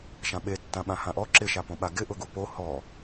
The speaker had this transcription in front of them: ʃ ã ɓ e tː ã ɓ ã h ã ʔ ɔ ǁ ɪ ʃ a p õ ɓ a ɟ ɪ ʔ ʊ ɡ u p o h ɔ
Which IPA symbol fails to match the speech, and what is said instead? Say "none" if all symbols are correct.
ɟ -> ɡ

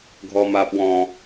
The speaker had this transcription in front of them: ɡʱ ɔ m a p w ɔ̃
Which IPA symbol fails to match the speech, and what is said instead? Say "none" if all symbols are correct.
none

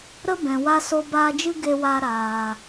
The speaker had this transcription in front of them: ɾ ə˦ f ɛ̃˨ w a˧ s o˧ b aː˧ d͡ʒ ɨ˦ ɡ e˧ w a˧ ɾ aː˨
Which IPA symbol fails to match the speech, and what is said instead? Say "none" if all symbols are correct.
f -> b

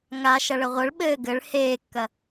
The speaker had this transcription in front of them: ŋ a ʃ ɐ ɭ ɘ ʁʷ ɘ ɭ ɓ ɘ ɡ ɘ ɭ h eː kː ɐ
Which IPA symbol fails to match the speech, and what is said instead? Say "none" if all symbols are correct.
none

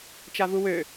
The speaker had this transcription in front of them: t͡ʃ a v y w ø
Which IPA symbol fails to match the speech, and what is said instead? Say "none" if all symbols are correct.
y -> u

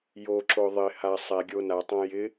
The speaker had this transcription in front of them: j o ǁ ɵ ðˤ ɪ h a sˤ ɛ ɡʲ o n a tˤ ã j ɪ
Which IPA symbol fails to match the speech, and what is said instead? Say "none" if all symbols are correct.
ɵ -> o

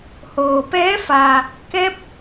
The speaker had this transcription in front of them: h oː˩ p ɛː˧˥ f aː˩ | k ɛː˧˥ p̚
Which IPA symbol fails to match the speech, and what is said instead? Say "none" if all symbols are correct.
none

